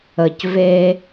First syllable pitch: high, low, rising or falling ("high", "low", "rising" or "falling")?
low